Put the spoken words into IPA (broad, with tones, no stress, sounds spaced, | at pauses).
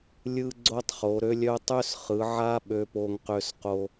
lʲ ɯ˥ ɡ͡ǀ o˥ tˤ χ o˨˦ ɾ ø˥ lʲ œ˥ tˤ ø˥ s χ ɯ˨˦ ʕ a˥ ɓ ø˥ p o˥ ŋ q ø˥ s q o˥